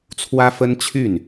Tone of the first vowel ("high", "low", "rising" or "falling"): high